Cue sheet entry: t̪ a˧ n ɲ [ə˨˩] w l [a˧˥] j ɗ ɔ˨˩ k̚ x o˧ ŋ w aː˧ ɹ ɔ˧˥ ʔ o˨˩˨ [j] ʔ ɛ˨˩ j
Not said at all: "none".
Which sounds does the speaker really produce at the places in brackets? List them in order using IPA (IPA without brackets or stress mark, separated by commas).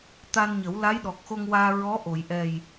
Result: ə˨˩˦, a˧˥, j